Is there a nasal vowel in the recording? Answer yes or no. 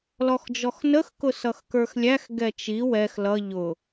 no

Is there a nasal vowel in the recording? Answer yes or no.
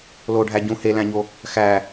yes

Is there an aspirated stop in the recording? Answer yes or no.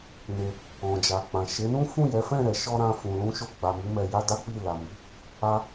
no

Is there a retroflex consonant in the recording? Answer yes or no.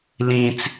no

